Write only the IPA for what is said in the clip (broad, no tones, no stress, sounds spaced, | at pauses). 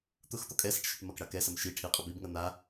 t̪ ʊ x t̪ ɔ kʼ ɛ s ɐ ʈ ʃ ɛ ʈ m ɐ k ɽ a k ɛ s ɐ m ʃ i ʈʰ i qʼ ʊ b i b ŋ ɐ n̪ a